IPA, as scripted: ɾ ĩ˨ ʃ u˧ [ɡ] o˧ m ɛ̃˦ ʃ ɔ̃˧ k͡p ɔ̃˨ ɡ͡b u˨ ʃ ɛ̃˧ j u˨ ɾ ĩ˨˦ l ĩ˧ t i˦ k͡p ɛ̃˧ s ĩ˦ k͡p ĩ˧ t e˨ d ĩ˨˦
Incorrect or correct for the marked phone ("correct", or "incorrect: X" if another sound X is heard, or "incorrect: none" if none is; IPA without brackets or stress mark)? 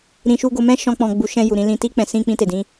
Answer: correct